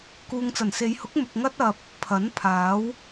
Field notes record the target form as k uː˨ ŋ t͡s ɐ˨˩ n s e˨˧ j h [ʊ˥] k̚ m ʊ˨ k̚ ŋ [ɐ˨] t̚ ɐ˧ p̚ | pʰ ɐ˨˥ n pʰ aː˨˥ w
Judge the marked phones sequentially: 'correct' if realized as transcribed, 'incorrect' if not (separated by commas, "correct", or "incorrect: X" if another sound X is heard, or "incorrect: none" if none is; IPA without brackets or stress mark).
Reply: incorrect: ʊ˨˥, incorrect: ɐ˥